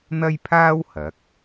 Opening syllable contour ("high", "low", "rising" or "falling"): high